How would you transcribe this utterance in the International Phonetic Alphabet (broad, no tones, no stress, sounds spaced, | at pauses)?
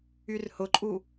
y r h ʊ ǃʼ u